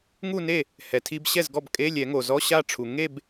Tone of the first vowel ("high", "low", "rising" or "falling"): falling